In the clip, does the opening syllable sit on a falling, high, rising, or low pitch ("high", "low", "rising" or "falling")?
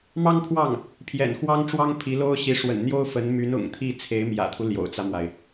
high